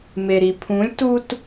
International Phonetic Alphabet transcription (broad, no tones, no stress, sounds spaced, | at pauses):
m e ɾ i pʰ ũ lʲ t u t